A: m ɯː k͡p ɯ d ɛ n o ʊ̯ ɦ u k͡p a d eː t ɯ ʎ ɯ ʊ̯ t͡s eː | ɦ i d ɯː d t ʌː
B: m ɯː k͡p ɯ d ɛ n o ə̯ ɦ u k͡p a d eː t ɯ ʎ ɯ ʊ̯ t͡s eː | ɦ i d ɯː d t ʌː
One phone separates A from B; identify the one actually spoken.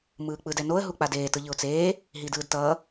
B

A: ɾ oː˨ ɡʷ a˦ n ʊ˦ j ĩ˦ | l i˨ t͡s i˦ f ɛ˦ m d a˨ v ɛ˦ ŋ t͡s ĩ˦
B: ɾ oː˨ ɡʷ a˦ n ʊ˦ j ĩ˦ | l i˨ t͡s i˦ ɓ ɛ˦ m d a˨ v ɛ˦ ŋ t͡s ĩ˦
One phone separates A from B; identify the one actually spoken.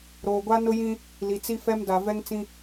A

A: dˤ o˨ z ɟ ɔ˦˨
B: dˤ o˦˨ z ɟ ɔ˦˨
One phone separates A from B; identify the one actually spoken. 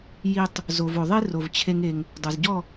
A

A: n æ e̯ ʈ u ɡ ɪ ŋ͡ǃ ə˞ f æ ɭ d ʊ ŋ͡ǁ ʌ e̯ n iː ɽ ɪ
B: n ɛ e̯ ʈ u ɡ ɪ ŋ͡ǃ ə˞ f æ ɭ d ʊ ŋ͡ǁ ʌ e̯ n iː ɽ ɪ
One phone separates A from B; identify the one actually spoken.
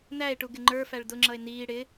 A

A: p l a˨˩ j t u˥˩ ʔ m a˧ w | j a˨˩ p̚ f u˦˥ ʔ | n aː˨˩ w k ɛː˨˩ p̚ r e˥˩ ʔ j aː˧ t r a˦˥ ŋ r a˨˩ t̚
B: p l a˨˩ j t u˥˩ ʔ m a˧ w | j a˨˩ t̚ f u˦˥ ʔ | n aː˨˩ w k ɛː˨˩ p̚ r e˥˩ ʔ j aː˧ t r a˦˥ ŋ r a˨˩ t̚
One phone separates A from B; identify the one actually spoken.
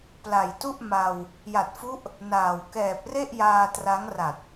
B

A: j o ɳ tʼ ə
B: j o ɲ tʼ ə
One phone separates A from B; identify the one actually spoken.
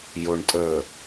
A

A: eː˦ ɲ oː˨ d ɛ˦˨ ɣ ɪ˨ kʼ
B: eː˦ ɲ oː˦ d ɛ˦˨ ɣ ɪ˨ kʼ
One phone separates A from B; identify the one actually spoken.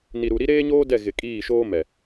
B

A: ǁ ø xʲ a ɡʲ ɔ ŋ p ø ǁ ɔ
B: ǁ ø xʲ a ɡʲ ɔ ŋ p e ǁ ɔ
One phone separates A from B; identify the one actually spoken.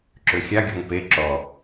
B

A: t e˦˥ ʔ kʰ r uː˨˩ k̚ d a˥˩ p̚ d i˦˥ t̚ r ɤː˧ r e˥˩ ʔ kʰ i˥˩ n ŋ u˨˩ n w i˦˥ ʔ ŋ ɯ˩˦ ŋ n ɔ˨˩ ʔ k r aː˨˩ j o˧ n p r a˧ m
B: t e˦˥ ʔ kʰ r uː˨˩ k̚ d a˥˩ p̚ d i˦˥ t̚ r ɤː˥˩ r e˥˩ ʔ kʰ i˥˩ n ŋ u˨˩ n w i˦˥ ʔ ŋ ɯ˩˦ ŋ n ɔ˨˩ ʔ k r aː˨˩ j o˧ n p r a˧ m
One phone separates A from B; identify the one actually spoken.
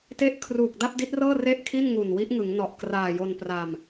B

